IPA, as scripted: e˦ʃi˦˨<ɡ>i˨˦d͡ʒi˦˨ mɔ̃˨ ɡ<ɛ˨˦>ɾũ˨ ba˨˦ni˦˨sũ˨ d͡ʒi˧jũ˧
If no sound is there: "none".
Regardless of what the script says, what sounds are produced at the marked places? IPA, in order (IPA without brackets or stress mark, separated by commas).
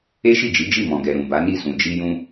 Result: d͡ʒ, ɛ˨